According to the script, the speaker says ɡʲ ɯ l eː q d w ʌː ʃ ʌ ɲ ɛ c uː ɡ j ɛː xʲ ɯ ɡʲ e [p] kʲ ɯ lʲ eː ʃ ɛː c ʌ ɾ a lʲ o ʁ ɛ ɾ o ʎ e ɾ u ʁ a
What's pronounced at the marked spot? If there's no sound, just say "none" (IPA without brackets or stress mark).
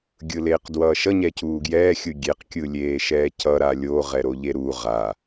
q